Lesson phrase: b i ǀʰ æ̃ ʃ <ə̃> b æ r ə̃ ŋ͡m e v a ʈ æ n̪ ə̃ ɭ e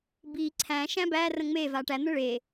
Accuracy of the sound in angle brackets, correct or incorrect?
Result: incorrect